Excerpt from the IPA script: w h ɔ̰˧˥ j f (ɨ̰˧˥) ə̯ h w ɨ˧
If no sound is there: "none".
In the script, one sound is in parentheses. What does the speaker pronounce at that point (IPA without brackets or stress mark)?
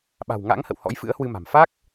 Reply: ɨ̰˧˥